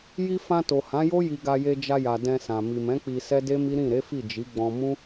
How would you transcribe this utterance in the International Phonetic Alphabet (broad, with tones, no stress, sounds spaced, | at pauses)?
j i˧ f ã˧ t o˨ h ã˨˦ j o˦ j i˧ ɡ a˧ j e˧ d͡ʒ a˧ j a˨ d ɛ̃˧ s ã˨ m i˨ m ɛ̃˨˦ k͡p i˧ s ɛ˦ d e˦ m i˦ ɾ ĩ˦˨ ɾ e˨˦ f i˦˨ d͡ʒ i˨˦ ɡ͡b ɔ̃˧ m ũ˦